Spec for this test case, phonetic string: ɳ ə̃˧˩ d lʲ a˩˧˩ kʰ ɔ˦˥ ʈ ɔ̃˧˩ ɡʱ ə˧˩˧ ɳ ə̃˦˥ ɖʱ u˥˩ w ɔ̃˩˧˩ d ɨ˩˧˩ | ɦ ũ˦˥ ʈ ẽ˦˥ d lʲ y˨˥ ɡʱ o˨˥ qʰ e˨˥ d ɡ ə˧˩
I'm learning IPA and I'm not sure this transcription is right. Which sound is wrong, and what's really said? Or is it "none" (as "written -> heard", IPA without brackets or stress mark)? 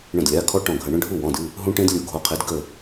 y˨˥ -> u˨˥